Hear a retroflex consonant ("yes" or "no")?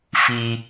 no